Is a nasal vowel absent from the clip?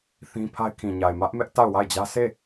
no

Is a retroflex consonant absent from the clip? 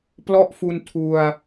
yes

